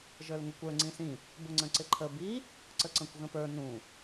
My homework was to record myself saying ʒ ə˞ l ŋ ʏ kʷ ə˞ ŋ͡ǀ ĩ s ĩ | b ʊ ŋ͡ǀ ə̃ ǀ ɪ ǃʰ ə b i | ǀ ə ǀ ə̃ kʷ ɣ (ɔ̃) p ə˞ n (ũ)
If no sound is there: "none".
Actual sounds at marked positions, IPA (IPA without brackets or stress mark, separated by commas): ə̃, ũ